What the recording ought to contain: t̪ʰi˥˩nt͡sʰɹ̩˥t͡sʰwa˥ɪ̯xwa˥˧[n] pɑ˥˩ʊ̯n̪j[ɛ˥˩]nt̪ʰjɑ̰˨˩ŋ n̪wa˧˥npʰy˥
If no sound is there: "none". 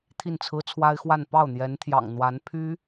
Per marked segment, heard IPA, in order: n, ɛ˧˥

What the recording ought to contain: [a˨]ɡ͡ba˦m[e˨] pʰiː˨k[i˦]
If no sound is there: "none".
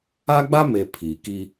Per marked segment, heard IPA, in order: a˦, e˨, i˦

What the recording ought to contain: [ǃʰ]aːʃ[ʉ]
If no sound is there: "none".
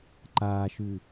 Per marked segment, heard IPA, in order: ǃ, ʉ

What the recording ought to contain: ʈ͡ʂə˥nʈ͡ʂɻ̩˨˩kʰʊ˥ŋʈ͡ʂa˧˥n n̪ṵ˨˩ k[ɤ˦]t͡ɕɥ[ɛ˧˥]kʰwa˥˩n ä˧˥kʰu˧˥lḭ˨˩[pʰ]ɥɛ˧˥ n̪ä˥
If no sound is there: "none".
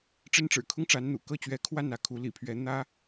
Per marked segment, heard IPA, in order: ɤ˥˩, ɛ˧˥, pʰ

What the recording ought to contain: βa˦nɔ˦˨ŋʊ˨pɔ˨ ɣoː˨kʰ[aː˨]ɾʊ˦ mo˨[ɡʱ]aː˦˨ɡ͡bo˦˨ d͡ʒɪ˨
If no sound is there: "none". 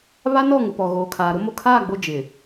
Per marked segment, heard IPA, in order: aː˨, kʰ

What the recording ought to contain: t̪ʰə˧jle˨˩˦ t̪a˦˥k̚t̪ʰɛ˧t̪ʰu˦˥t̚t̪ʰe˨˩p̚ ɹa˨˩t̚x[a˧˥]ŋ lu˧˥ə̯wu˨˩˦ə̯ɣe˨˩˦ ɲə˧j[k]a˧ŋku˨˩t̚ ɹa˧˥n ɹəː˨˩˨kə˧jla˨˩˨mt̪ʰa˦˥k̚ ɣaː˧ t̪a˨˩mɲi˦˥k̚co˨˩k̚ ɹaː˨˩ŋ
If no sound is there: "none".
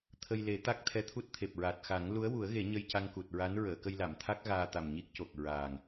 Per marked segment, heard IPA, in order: a˨˩˦, c

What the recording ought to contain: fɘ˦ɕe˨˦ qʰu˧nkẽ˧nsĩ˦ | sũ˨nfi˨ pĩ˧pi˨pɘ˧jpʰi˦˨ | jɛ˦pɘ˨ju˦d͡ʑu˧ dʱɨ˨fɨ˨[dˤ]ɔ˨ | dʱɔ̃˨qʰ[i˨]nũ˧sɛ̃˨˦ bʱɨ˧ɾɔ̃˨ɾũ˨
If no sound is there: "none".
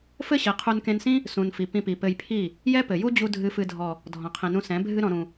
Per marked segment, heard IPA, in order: dʱ, ĩ˨

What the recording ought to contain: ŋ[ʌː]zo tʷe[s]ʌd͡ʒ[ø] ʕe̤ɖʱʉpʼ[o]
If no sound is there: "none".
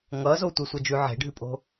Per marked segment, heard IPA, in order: ʌː, sʷ, ʉ, o̤

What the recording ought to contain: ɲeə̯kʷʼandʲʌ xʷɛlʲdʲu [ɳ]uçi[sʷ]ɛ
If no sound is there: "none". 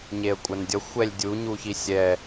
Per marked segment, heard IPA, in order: ɲ, sʲ

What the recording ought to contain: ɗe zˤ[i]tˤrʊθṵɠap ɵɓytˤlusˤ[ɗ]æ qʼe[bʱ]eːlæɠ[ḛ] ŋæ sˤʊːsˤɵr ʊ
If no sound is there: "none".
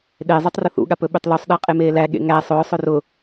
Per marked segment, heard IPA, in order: y, ɗ, m, ḛ

